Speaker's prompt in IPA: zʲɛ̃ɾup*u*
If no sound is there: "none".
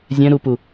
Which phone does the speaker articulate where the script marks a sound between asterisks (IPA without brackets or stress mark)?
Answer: u